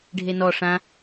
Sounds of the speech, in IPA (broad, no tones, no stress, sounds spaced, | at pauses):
ɖʱ e n ɔ ʂ ã